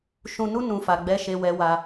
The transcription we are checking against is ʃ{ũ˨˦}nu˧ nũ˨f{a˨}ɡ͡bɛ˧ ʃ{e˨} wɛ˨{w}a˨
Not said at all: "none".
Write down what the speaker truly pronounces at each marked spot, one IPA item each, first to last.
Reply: ũ˨, a˨, e˨, w

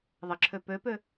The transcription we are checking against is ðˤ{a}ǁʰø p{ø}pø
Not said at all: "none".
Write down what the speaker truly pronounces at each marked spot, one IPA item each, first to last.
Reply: ə, ø

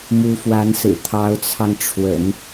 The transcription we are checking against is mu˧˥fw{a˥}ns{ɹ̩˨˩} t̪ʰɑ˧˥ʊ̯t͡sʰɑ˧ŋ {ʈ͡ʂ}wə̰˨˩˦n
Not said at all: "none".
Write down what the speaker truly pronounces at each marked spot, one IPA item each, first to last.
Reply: a˧˥, ɹ̩˨˩, ʈ͡ʂʰ

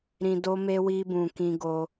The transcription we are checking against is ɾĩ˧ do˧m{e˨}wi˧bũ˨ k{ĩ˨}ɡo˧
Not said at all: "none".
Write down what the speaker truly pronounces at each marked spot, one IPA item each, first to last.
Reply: e˧, ĩ˧

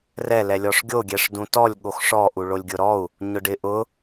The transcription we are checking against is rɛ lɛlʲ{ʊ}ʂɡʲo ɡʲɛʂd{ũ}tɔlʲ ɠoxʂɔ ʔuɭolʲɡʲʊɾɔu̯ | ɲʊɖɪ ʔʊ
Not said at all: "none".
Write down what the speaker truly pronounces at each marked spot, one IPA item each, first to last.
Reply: ɔ, ũ

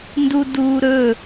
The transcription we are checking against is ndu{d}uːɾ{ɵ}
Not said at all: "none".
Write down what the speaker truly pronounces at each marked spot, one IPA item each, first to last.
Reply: d, ɵ

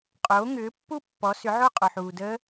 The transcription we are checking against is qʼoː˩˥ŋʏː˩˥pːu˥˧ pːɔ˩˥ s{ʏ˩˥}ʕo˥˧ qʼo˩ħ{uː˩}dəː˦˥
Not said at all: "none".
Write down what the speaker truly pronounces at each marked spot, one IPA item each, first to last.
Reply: ʏ˩˥, uː˩

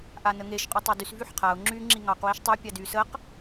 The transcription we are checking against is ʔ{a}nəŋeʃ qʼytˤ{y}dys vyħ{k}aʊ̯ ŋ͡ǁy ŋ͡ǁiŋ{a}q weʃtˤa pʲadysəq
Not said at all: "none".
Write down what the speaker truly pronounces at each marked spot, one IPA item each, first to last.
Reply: a, e, qʰ, ɑ

